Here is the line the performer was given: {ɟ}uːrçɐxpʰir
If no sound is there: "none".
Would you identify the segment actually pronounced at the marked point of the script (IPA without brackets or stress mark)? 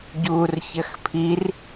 ɟ